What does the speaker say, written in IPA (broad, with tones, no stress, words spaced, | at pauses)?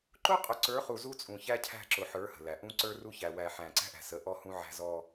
ǃʊ˦qʼʊ˨ǀə˞˨˦ χu˨ zu˦t͡sʼũ˨çæ˦cʰæ̤˦˨ ǁʊ˨ħə˞˨˦ hə̤˨læ˨ ʔũ˦ǀə˞˦ru˦çæ˨ wæ˨ ħæ̃˨ǀæ̤˦ʔæ̤˨sə˨˦ ʔɔ˦hũ˦ʕæ̤˦ zɔ˦